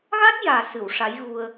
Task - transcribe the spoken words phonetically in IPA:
ɣ a˦˥ t̚ j aː˨˩ s ɨ˨˩˨ w ʂ a˧˥ j ɣ u˧ ə̯

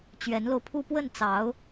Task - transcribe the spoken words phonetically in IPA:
t͡ɕ ɥ ɛ˧˥ n l o˧ ʊ̯ pʰ u˥˧ p w ə˥˩ n t͡s ɑ˧˥ ʊ̯

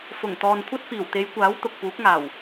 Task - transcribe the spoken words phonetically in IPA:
f ʊ˨˩ ŋ t̪ ɔː˨ n kʷʰ ɐ˥ t̚ f iː˨˩ w t̪ e˨˧ j kʷ aː˨˥ w t̪ ʊ˨ k̚ p uː˨˥ k̚ ŋ aː˨˩ w

